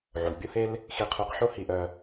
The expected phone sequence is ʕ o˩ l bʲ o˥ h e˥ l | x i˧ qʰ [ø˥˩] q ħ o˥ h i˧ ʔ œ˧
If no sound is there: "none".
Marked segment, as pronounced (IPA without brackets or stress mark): ø˧